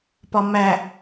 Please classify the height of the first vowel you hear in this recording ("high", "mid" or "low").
low